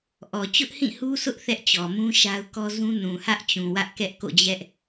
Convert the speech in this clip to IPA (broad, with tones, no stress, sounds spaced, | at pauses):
ʔ ɔ˨ t͡ɕ ʊ˦ ʔ h ĩ˦˨ h u˦ sʰ ʊ˦ ʔ θ ɛ˦ ʔ t͡ɕ ɔ˨ m ũ˦ ʃ a˦ ʊ̯ k ɔ˦ z ũ˦ n ũ˨ h ä˦ ʔ t͡ɕ ũ˨ w ä˦ ʔ k ɛ˦ ʔ k o̰˦˨ d͡ʑ ɛ˦ ʔ